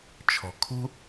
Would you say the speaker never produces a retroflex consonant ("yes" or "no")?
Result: yes